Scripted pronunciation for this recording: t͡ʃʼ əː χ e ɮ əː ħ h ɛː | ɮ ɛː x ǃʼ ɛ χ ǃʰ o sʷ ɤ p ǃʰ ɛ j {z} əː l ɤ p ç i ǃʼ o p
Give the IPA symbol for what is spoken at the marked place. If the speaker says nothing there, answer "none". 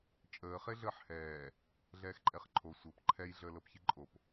ɮ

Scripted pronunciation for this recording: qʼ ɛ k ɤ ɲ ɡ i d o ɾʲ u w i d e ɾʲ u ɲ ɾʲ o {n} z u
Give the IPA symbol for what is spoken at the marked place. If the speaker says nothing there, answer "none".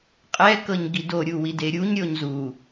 ɲ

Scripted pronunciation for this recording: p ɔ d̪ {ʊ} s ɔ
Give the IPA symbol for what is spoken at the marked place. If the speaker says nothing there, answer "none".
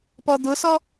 ʊ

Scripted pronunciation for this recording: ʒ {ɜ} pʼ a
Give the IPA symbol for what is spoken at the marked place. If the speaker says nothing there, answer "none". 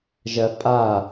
ɜ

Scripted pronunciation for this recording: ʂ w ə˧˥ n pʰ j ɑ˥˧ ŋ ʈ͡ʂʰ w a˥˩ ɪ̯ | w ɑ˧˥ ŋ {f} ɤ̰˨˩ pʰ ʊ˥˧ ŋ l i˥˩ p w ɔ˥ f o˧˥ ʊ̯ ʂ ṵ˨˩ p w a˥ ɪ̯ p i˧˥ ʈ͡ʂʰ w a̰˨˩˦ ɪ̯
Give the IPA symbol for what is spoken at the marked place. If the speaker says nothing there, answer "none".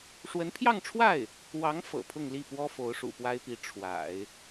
f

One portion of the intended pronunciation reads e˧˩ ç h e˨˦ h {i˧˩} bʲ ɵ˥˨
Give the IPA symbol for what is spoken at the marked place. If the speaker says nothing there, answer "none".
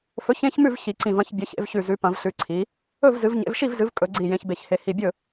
i˧˩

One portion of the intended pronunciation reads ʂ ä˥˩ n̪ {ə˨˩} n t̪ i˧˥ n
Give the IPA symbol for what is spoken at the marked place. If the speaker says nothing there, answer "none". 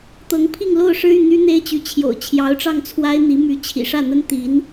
ə˥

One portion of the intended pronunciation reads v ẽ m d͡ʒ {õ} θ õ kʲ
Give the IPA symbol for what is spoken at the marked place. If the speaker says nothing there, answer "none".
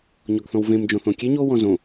õ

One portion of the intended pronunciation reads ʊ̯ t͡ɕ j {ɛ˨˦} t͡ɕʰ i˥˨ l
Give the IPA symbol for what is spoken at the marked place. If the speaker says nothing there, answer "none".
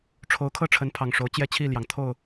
ɛ˥˨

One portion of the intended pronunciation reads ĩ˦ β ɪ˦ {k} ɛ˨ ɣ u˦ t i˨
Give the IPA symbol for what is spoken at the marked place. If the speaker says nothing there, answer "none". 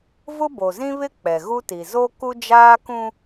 k͡p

